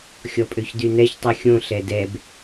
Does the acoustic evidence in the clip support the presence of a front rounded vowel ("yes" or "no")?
yes